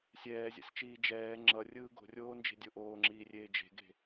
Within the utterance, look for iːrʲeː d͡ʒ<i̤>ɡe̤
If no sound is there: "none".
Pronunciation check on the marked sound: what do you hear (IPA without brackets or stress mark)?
e̤